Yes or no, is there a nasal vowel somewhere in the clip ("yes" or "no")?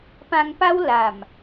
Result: yes